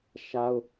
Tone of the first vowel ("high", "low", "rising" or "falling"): high